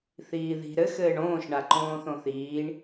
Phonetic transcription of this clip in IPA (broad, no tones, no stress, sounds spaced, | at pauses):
θ iː ð i̤ ɾ ɘ x ɘː ɳ õː ʃ ɳ a ǃ õː θ õ θ iː ɳ